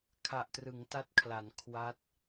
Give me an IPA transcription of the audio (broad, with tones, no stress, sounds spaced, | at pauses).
kʰ a˨˩ ʔ t r ɯ˩˦ ŋ t a˦˥ t̚ kʰ l a˩˦ n kʰ w a˦˥ t̚